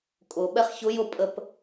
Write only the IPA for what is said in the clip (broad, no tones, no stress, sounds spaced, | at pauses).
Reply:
kʼ ʊ ɓ ɛ χ ç ʊ j ʊ pʼ ə p